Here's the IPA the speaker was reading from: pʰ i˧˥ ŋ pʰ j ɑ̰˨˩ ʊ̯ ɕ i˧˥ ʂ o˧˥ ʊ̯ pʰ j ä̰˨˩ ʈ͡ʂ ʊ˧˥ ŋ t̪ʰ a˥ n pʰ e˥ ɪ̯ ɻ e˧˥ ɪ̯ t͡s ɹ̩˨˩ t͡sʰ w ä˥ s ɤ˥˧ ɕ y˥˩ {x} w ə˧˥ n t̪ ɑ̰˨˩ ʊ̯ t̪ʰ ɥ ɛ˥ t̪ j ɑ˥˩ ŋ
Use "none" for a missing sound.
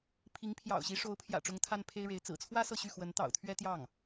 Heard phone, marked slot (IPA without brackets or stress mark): x